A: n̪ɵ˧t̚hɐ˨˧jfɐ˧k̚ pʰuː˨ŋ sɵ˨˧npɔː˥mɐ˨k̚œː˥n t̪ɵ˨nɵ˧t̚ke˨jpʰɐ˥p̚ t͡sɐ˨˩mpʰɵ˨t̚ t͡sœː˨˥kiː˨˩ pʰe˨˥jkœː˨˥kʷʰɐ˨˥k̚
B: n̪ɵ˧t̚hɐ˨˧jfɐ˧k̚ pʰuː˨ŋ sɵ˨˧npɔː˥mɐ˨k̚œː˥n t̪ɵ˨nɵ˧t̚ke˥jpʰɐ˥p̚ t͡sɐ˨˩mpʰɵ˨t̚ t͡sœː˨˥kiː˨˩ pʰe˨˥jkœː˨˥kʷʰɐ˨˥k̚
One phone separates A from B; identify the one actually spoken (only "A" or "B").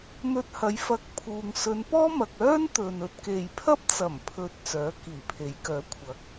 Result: A